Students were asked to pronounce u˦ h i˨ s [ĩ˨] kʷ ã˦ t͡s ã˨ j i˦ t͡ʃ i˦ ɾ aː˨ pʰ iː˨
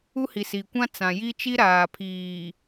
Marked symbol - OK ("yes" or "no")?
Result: no